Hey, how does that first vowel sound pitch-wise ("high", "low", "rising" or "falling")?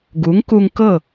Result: rising